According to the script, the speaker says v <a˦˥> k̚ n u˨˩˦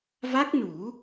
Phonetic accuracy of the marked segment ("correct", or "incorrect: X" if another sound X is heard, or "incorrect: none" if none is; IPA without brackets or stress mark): correct